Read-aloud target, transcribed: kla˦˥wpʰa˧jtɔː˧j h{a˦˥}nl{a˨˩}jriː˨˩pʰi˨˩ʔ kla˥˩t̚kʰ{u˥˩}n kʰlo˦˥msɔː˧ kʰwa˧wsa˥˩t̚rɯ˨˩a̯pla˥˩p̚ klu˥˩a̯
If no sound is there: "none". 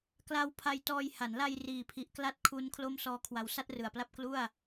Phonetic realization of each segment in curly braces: a˩˦, a˧, u˦˥

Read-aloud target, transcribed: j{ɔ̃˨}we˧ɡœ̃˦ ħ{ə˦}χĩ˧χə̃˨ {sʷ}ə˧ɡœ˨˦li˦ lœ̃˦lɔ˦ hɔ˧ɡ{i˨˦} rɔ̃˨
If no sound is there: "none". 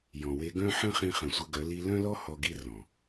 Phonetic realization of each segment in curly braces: ɔ̃˨, ə̃˦, sʷ, i˦

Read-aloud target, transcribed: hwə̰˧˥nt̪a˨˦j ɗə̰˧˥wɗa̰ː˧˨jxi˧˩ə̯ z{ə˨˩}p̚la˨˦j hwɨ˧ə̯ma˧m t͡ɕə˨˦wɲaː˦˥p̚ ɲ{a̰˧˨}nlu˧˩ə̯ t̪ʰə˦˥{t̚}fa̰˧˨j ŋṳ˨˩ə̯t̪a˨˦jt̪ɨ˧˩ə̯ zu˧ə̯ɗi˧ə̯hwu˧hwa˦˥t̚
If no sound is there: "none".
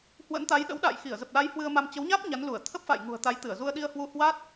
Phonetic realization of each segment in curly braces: ə˨˩, a˨˦, p̚

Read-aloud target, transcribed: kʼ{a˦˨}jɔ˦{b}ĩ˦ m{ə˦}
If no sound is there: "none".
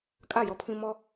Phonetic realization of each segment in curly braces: a˦˨, pʰ, ɔ˦

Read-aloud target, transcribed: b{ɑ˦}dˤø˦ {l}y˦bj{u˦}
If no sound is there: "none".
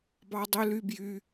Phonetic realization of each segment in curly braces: ɑ˦, l, y˦

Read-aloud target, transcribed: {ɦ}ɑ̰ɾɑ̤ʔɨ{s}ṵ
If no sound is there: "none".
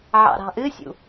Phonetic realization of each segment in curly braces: ʕ, sʲ

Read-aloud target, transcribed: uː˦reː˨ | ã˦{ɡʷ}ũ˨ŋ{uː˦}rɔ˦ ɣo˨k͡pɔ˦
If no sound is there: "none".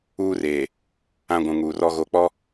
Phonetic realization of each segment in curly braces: ɡʷ, uː˨

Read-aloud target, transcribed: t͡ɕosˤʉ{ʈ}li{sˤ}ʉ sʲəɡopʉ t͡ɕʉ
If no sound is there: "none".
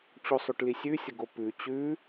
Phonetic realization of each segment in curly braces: ʈ, sʲ

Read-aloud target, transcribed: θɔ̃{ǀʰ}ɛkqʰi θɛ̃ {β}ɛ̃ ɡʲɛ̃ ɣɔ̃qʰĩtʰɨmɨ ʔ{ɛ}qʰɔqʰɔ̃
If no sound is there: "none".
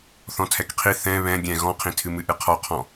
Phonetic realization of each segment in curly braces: tʰ, β, ɨ

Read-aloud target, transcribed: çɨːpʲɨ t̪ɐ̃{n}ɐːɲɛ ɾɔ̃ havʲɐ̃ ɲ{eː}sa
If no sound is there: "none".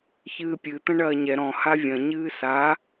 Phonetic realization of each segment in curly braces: ɳ, ɨː

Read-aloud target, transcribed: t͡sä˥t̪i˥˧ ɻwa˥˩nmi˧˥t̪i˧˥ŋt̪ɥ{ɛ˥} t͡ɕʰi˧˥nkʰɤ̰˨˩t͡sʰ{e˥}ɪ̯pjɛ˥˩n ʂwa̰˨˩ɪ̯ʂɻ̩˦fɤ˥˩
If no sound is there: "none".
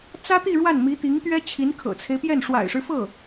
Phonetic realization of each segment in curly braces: ɛ˥, e˦

